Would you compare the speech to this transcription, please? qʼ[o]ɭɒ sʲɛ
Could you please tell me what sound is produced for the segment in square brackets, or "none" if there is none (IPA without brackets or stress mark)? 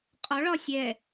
ɔ